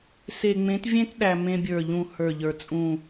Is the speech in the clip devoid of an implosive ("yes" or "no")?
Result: no